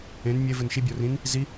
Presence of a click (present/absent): absent